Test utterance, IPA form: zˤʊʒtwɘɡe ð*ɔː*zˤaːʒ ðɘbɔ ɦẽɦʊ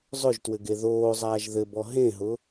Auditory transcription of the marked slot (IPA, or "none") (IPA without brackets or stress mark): oː